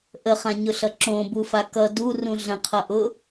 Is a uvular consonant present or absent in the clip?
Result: present